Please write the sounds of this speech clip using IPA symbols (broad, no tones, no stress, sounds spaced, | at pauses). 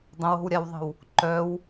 dˤ ə̃ w o̤ w ɾʲ a w ðˤ ə̤ w | ǃ œ w